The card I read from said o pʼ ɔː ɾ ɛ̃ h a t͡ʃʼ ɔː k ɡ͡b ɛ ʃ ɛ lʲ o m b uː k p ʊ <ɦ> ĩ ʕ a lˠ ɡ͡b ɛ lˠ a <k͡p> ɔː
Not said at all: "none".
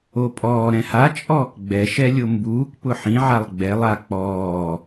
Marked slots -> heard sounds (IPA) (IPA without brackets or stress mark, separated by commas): ħ, k͡p